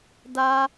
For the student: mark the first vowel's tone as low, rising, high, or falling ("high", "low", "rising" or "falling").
high